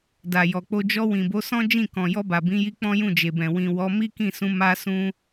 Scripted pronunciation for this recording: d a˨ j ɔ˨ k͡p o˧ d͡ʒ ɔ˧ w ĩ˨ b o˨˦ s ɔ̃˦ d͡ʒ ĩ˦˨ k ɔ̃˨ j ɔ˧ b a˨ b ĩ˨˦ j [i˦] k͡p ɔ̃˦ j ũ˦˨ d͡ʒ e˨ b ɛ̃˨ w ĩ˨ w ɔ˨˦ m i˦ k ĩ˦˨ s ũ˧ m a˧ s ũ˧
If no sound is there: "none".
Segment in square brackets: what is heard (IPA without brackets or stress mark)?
i˧